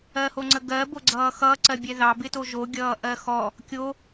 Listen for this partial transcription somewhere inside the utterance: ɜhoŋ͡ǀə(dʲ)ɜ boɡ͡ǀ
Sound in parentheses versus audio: incorrect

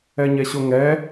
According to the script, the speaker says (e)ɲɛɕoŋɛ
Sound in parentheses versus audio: incorrect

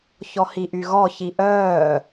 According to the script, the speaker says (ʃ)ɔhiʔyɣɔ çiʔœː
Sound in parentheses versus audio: incorrect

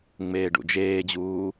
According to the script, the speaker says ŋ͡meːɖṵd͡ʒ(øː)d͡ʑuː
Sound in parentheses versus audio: incorrect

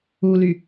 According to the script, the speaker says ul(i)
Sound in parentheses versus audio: incorrect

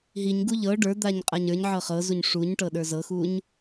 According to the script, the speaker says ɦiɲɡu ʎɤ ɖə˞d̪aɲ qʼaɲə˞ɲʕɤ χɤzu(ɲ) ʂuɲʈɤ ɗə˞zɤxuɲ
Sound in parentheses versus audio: correct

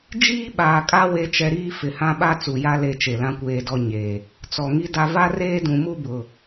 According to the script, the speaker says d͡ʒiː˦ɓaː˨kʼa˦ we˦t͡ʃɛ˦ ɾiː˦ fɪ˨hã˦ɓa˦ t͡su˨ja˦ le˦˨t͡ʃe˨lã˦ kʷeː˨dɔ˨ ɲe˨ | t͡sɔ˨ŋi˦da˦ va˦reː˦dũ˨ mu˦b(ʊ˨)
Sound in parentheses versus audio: correct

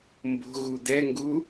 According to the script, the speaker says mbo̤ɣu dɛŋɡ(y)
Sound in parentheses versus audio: incorrect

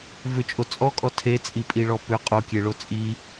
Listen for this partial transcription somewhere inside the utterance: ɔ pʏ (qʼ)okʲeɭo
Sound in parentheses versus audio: correct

